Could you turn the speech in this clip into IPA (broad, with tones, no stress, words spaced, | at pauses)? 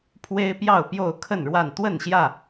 pʰwe˦ɪ̯pjɑ˥˨ʊ̯pjo˥˨ʊ̯ kʰə˥˨nɻwa˥˨n t̪wə˥˨nɕjä˥˨